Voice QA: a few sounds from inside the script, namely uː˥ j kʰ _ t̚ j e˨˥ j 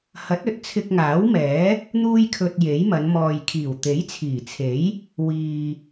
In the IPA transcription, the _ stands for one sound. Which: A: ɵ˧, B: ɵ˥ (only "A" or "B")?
A